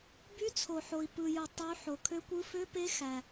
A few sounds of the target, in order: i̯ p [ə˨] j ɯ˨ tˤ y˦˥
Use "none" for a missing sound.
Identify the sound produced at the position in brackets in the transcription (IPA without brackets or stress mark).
ɯ˨